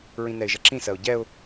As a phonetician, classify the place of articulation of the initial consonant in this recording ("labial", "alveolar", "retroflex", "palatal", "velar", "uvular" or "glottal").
alveolar